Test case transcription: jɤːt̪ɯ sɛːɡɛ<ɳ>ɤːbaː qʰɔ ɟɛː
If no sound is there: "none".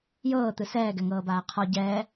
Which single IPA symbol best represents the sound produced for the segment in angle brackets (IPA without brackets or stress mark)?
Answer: ŋ